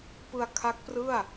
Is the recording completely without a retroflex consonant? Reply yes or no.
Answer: yes